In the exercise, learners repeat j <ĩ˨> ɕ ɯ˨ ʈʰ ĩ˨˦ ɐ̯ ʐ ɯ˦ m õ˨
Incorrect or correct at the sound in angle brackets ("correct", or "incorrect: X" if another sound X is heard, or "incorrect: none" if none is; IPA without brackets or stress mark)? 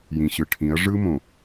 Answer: correct